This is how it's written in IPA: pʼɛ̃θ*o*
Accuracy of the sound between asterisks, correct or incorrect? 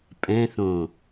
incorrect